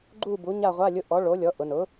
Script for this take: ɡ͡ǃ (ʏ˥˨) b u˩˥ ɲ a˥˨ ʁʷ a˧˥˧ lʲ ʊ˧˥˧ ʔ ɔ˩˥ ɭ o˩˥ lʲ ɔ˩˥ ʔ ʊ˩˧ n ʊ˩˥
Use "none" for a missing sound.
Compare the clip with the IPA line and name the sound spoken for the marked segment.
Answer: u˥˨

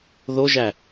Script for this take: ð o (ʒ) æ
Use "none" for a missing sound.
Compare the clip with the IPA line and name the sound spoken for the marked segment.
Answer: ʒ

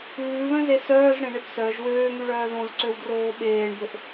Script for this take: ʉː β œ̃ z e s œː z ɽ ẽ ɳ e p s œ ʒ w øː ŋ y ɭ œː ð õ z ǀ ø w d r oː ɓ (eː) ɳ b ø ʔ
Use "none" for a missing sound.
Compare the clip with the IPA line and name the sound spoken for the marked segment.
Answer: eː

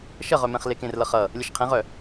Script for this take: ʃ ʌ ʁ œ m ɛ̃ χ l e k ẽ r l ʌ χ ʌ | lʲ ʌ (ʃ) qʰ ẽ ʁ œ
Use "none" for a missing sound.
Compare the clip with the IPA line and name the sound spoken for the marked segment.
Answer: ʃ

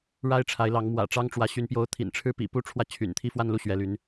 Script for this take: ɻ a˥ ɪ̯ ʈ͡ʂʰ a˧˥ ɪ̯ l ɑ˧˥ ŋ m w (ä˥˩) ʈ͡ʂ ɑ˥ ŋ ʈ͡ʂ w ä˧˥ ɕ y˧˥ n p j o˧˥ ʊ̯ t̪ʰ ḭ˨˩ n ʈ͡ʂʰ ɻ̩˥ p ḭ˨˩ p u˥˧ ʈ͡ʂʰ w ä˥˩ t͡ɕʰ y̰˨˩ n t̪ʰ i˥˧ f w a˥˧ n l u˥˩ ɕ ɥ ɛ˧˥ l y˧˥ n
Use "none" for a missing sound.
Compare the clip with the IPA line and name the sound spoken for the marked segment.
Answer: ä̰˨˩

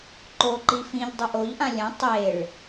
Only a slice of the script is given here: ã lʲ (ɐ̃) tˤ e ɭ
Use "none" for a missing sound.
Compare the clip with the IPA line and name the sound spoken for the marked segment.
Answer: ɐ̃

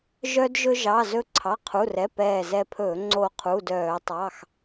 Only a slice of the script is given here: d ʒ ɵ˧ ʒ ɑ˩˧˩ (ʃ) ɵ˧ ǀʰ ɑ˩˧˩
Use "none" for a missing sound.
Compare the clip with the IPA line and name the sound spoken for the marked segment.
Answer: z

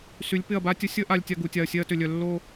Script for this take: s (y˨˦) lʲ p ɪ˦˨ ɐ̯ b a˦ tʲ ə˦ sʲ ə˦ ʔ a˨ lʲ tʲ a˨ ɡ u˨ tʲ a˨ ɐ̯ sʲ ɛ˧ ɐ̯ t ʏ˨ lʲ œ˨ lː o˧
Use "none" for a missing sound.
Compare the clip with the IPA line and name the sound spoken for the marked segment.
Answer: y˨˦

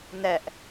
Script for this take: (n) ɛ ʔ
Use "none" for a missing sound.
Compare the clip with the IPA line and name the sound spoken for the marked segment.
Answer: n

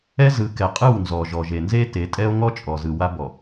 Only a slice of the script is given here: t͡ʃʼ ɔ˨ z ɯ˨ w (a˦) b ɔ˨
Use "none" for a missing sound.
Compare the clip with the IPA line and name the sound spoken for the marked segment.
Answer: a˦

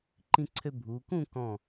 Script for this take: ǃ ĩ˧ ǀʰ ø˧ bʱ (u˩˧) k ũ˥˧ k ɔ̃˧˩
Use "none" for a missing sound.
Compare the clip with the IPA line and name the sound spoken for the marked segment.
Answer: u˩˧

